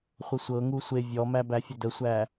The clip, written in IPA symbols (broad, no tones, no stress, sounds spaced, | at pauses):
χʷ ə sʷ ɤ ŋ u sʷ e vʲ ɔ m æ b æ fʲ ə d ə sʷ æ